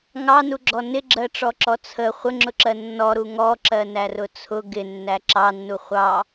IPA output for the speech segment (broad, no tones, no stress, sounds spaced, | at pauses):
ŋ ɑ n u ɡ͡ǁ ɔ n ɪ ɡ͡ǁ ɜ ʈ͡ʂ ɔ ǁ ɔ t͡sʰ ə χʷ ə ŋ͡ǁ ʊ ǁ ɜ nː ɔ ɾ u ŋ ɔ ǁ ɜ n æ r ʊ t͡sʰ ʊ ɡ ɪ nː æ ǁ ɑ nː u χʷ ɑ